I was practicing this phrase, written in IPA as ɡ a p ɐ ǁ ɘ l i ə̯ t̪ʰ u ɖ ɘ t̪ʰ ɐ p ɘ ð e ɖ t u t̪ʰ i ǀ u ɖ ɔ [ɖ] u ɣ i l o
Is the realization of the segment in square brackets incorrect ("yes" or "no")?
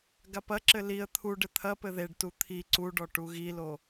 yes